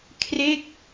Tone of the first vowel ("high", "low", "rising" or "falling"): falling